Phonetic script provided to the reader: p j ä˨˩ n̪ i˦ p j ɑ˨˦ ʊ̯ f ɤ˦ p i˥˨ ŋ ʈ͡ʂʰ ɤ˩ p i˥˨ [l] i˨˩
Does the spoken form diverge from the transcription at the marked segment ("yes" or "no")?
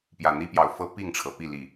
no